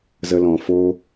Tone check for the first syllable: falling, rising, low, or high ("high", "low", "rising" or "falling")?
low